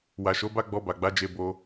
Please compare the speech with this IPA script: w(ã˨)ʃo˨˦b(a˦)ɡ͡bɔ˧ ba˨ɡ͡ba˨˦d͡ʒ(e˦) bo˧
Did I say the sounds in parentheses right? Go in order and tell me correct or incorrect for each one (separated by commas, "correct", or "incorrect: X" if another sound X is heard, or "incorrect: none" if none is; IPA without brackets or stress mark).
incorrect: a˨, correct, incorrect: e˧